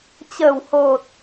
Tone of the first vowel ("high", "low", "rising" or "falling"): low